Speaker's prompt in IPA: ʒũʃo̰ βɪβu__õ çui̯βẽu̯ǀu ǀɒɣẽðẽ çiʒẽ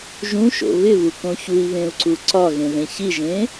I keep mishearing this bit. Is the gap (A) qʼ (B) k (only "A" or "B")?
B